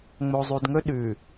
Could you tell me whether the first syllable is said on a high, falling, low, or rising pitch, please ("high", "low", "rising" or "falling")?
low